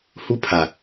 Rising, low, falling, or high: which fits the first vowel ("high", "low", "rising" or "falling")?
high